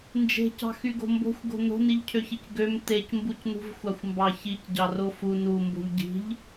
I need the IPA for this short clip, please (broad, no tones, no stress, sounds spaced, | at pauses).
n d͡ʒ e̤ c ɑ̤ x y ɡ o̤ m b o̤ xʷ ɡ o̤ n o̤ n i ʎ cʰ ø ç i c ɡ ø m t e c m b u c n ṳ v xʷ ɑ xʷ m b ɑ ç i c ɟ ɑ r o f u n u m b o̤ ʎ ɟ i̤ ʎ